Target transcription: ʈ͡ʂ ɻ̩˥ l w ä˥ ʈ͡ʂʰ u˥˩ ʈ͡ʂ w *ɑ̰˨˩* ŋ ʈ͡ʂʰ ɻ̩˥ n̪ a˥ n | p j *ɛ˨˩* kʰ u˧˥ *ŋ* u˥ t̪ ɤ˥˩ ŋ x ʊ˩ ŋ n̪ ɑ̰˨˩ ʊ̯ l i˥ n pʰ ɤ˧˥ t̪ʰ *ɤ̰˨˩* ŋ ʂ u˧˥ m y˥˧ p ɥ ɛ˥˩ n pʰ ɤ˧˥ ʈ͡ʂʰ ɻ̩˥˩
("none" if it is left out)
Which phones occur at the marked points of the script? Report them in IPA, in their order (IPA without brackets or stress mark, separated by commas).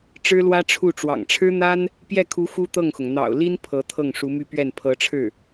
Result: ɑ̰˨˩, ɛ˥˩, x, ɤ˥˩